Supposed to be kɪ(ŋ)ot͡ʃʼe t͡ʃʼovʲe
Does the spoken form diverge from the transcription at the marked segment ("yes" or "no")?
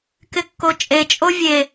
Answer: yes